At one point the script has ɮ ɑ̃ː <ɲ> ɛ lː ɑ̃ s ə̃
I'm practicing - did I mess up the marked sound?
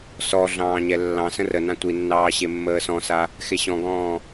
no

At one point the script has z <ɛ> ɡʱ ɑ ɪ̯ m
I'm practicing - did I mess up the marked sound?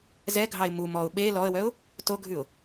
no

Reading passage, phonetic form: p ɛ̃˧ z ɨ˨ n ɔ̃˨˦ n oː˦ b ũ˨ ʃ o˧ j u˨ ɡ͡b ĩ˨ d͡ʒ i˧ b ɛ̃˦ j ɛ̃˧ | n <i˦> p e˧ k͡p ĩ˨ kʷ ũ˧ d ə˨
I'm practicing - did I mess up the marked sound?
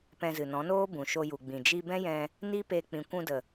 no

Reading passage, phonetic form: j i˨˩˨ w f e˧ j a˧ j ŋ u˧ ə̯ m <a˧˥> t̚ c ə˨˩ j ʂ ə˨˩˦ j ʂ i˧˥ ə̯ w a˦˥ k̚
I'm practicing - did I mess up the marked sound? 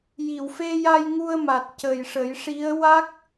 yes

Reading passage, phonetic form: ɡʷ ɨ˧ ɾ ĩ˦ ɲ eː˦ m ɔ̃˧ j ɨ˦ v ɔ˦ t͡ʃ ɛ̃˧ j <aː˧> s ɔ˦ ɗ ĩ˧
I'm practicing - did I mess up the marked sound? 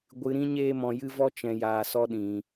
no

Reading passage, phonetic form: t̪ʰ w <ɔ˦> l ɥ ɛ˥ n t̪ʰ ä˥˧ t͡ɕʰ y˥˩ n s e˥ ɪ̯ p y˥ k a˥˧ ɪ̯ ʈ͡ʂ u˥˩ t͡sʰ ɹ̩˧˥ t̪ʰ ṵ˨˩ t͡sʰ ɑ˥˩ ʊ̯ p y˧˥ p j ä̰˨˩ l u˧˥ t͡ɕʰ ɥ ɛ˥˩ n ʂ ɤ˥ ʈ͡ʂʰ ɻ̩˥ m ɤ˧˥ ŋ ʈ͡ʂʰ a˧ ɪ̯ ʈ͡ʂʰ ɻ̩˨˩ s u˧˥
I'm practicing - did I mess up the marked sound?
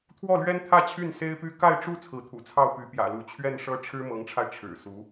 yes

